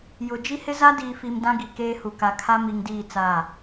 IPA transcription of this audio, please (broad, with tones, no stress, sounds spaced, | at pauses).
j ʊ˨ d͡ʒ i˦ h ɪ˦ z a˦ d iː˨ f i˨ m d ã˦ ɡ i˨ k eː˦ h u˨ k a˨ kʰ a˦ m i˨ ŋ d iː˦˨ t͡s aː˦˨